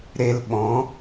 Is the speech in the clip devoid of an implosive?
no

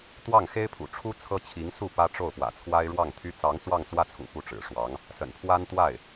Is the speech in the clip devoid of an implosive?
yes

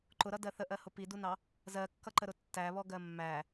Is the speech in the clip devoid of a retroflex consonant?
yes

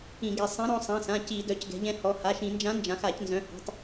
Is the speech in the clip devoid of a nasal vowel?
no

